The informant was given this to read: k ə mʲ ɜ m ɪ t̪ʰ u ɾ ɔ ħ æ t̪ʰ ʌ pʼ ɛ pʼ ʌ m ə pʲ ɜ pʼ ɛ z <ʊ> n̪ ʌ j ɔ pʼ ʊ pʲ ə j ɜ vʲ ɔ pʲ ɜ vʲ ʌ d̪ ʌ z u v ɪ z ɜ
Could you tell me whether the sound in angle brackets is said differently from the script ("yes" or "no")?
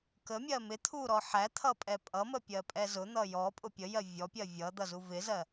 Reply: no